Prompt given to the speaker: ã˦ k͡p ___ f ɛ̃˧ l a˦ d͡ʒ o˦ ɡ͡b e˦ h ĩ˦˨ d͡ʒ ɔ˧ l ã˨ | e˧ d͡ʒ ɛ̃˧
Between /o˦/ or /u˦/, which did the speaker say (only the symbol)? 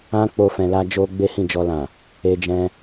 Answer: o˦